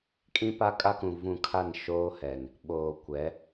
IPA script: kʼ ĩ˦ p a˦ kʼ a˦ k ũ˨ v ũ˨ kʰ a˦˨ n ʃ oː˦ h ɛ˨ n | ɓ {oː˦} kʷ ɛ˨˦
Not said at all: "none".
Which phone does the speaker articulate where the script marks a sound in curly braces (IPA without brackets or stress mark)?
oː˨